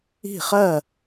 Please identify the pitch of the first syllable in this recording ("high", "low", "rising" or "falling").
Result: falling